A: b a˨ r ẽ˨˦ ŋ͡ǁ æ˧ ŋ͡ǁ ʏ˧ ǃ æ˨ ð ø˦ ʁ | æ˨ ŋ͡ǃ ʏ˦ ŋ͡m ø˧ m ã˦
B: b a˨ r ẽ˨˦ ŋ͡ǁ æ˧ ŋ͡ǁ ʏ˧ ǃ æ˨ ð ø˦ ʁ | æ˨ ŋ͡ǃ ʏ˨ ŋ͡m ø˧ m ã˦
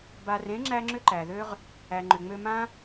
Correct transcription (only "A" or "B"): B